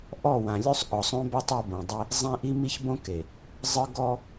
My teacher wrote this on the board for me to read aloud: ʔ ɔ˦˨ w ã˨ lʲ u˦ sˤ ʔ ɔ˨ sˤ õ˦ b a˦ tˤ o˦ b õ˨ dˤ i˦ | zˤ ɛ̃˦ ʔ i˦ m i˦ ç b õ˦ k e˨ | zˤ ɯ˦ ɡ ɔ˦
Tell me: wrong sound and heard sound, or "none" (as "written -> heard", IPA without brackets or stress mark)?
none